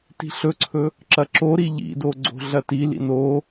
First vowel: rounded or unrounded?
unrounded